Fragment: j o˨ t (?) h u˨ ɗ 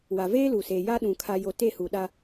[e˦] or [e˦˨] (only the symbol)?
e˦˨